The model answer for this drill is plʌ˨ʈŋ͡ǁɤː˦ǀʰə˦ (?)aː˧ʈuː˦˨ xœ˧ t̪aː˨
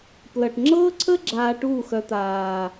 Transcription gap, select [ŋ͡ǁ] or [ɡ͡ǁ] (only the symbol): ɡ͡ǁ